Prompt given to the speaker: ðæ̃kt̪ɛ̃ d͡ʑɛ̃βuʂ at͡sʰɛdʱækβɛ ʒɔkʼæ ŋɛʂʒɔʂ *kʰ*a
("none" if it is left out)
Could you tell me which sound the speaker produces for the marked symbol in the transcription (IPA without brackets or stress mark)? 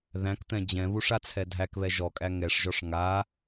ŋ